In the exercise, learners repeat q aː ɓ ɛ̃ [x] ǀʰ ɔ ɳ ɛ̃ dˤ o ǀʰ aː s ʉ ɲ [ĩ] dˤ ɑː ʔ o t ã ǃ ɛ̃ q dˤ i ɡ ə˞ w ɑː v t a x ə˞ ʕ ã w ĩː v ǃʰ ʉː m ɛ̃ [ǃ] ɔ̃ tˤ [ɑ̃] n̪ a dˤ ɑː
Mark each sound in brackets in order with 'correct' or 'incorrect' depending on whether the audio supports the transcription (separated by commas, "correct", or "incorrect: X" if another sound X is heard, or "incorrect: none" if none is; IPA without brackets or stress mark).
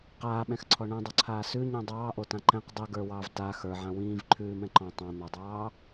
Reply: correct, correct, correct, correct